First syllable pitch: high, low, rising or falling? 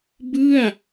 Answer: falling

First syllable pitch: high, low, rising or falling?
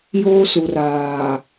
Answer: high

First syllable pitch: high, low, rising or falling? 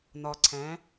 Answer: low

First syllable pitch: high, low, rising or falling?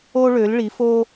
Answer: high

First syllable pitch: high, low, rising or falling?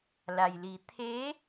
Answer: low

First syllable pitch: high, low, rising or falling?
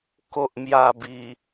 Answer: low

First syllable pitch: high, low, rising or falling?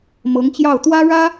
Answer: rising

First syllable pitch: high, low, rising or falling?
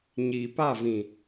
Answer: low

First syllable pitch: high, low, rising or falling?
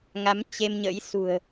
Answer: rising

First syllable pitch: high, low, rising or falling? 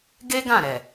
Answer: high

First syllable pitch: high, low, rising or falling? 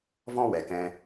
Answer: high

